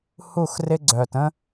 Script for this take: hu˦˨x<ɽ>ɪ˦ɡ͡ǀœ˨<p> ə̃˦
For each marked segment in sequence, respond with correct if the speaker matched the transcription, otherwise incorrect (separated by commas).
incorrect, incorrect